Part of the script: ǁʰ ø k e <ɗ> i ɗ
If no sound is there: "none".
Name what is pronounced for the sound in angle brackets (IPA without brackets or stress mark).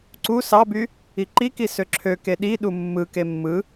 ɗ